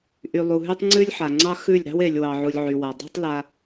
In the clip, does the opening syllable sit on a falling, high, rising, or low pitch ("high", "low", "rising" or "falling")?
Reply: low